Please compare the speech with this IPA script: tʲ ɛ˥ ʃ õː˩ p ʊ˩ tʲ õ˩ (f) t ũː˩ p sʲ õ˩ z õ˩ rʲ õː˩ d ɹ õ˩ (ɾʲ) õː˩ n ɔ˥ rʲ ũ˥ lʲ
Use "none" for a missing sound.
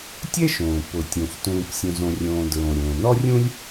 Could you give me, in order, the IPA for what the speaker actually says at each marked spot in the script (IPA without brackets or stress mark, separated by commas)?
f, ɾʲ